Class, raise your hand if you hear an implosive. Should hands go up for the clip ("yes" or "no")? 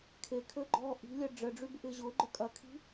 no